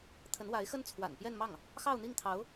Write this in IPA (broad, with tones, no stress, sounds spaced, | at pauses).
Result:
t̪ʰ ə˧˥ n w a˧˥ ɪ̯ x ə˥ n t͡sʰ w a̰˨˩ n p j ɛ˥˧ n m ɑ˥˩ ŋ | x ɑ˥˧ ʊ̯ n̪ i˥˩ ŋ t̪ʰ ɑ˧˥ ʊ̯